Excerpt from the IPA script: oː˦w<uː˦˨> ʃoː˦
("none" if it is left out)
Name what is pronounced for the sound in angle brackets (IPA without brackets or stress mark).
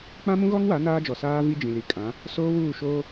uː˦˨